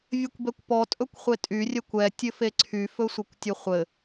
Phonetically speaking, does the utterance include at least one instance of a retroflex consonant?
no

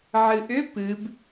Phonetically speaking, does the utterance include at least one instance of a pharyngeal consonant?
yes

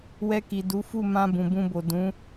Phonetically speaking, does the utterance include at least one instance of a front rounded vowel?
no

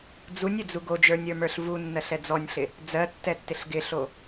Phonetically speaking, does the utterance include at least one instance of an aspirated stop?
no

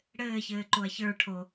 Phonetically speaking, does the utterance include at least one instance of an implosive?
no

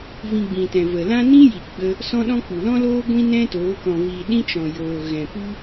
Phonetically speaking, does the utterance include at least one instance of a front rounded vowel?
no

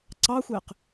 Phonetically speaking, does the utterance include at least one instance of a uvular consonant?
yes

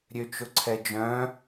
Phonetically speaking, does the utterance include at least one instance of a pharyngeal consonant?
no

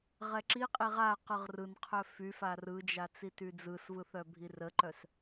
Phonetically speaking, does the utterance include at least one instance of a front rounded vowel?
yes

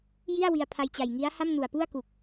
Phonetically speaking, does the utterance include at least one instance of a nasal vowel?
no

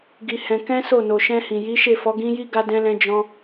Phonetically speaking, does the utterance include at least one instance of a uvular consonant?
no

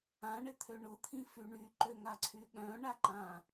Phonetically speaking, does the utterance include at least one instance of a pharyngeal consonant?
no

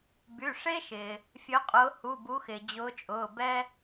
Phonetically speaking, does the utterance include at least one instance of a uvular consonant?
yes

